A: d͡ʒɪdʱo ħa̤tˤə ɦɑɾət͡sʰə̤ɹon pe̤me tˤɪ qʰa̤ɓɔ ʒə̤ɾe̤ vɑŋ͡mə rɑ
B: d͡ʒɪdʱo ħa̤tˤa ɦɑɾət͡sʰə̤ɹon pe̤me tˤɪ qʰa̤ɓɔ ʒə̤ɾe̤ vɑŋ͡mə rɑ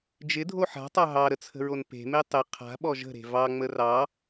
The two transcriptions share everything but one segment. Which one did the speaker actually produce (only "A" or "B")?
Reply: B